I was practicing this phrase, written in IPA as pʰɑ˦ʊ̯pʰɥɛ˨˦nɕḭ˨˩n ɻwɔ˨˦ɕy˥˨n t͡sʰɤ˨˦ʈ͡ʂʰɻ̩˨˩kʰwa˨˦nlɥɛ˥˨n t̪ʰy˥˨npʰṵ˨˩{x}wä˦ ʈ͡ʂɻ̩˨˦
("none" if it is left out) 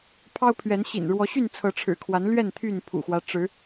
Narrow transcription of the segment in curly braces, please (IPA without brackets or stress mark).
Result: x